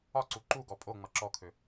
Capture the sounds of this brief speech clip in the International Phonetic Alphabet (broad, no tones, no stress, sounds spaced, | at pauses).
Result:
ɒ ǀ u ǃ u ɡ ɔ pʼ o ŋ͡m ʌ ǁ ɔ kʰ ø